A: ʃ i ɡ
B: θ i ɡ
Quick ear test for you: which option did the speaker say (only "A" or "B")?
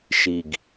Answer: A